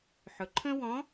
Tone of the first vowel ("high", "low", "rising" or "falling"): low